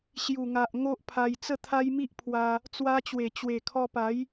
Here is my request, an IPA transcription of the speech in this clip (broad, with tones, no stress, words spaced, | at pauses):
ɕju˨˩ŋa˨ʔ ŋo˦ʔpʰa˧j t͡sə˥˧t̪ʰa˦jmi˦ʔpʰwa˧ | t͡swa˧t͡ɕwe˨˩ t͡ɕwe˨˩kʰɔ˧pa˨˦j